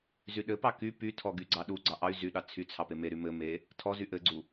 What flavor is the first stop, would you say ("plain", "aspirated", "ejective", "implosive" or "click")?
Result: implosive